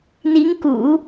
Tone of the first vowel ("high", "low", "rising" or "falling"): rising